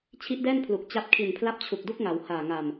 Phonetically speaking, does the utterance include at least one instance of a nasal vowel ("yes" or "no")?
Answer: no